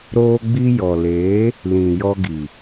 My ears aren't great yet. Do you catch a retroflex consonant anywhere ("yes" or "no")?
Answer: no